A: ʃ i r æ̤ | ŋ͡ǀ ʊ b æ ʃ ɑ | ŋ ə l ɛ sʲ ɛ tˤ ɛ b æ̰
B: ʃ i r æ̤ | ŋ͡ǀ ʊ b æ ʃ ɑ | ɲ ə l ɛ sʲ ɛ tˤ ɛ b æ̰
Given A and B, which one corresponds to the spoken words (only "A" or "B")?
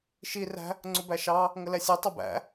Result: A